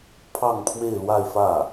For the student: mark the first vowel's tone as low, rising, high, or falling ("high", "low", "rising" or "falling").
falling